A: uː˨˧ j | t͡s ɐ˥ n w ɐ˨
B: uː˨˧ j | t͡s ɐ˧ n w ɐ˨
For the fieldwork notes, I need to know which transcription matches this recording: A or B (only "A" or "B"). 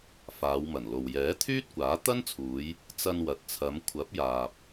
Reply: B